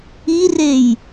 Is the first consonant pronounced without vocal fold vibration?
no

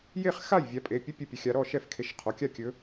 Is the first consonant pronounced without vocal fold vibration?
no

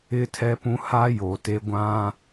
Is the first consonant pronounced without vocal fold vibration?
yes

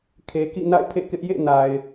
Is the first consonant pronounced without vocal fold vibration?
yes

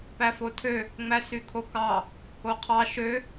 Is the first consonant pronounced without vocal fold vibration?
yes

